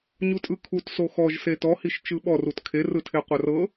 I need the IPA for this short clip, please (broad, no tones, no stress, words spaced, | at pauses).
ɲutʼɯkʰut soxɔʒ setɔhiʃ t͡ʃɯɓɔrut kʰerɯtʰe qʷarɤ